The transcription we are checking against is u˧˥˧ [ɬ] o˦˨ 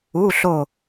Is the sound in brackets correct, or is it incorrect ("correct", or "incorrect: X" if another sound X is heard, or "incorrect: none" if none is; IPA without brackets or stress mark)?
correct